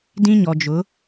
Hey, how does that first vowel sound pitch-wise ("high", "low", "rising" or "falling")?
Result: high